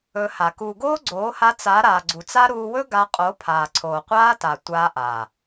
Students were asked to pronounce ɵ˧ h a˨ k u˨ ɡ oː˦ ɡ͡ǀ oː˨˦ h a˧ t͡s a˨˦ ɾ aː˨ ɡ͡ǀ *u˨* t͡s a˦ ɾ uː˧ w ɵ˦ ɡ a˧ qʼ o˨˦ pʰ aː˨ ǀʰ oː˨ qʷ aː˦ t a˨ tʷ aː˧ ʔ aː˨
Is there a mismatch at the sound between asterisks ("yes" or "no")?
no